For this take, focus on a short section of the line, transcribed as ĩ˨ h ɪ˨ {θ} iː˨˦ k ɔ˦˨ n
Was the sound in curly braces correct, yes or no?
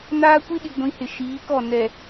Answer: no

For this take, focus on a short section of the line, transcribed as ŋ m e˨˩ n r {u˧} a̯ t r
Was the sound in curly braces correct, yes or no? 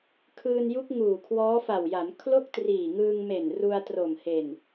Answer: yes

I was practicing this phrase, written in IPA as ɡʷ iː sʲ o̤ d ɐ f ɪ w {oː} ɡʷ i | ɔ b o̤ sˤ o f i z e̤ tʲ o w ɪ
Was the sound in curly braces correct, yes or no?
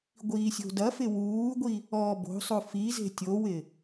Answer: no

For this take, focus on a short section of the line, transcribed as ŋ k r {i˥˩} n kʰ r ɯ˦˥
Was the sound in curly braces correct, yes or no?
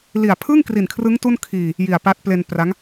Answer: no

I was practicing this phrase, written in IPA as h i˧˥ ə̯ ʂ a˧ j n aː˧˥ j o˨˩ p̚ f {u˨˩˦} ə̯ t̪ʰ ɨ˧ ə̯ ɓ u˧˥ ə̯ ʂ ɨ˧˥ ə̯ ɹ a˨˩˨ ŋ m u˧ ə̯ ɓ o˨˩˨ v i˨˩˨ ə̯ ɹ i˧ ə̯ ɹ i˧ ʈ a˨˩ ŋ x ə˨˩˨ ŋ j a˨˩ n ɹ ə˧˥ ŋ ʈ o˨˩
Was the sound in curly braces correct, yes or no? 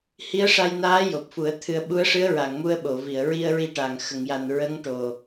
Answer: yes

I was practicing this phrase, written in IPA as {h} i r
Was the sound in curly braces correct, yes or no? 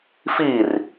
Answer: no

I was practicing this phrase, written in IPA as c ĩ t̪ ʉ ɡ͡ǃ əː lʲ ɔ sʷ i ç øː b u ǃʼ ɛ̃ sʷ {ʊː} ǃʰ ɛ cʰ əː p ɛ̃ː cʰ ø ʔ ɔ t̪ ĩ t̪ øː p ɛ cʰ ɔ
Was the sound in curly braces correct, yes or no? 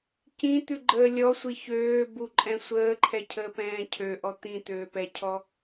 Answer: no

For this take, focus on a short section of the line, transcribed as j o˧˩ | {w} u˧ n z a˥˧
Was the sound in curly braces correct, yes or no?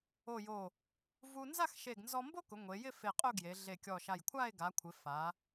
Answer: no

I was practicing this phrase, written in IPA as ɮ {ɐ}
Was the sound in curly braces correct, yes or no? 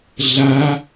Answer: no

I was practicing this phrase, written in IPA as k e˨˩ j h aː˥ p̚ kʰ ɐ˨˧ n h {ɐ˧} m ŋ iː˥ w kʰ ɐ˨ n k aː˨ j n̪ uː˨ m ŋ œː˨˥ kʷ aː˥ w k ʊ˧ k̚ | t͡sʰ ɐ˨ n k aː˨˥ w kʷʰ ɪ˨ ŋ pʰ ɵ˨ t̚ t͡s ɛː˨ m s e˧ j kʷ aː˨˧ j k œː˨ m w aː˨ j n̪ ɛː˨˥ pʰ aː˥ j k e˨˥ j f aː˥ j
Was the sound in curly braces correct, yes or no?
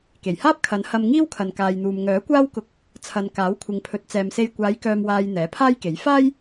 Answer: yes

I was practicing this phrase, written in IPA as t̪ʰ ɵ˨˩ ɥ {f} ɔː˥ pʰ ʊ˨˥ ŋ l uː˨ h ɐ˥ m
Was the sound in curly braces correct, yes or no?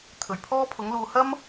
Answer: no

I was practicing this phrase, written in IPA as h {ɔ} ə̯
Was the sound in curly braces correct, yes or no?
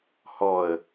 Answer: yes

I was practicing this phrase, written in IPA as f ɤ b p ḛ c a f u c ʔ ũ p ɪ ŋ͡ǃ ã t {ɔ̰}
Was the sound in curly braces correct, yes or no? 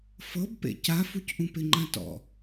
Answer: yes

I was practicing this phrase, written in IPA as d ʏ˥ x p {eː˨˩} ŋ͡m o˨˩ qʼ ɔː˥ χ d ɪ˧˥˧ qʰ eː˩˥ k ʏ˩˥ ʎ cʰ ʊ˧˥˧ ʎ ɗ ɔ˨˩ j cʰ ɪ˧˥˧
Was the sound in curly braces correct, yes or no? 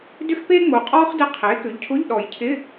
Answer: no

